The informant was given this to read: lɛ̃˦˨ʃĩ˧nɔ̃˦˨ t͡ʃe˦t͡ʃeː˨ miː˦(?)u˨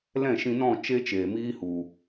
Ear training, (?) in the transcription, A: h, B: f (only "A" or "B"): A